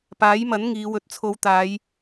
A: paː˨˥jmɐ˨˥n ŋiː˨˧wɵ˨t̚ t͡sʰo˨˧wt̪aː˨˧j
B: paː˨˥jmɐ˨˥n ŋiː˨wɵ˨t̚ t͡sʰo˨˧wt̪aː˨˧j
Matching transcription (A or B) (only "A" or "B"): A